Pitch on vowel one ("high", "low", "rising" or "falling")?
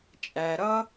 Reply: low